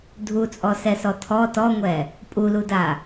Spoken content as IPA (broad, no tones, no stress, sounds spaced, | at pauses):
dʱ u t͡sʼ ɔ s ɛ s ɔ tʰ ɔ t ɔ ŋʷ ɛ | pʼ u l u d a